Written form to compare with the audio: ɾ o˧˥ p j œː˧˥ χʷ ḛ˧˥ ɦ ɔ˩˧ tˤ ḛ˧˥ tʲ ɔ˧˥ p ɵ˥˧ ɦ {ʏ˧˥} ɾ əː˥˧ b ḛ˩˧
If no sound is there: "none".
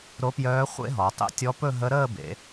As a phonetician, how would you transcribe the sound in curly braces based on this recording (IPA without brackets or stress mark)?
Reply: ə˧˥